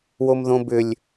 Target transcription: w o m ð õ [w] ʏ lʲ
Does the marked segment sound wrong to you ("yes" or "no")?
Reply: yes